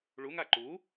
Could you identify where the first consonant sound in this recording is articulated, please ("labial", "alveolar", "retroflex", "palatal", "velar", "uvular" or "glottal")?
retroflex